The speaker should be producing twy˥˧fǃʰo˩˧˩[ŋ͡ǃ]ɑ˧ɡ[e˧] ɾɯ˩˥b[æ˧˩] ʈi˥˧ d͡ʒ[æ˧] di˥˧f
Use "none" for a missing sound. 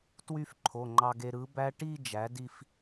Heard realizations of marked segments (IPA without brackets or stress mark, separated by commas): ŋ͡ǃ, e˧, æ˦˥, æ˩˥